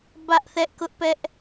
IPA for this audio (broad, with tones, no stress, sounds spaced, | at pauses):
b ä˦ ʔ θ ɛ˦ ʔ k ʊ˦ ʔ p ɛ˦ ʔ